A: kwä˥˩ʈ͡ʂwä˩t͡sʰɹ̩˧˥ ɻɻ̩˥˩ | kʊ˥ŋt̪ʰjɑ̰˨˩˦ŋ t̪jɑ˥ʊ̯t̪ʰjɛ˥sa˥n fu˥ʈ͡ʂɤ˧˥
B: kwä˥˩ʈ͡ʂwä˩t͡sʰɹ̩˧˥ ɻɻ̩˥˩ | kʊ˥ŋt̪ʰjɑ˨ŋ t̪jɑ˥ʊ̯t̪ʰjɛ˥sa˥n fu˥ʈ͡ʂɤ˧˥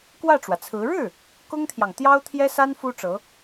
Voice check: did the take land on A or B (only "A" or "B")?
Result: B